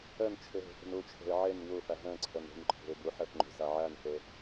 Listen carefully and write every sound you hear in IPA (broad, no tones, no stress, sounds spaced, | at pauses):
ɐ n t͡ʃʰ ə ɦ o̤ f ə̤ n o t͡ʃʰ ɛ̤ ə̯ ʕ ɛ n w o f a ɦ ɐ̃ ǀʰ ɐ n ɛ̤ n ǃʰ o̤ ə̯ b o ħ ɐ f ŋ͡ǃ o̤ s ɑ ʕ a n f ɛ